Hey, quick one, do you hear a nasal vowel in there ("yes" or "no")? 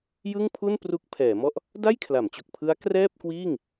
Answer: no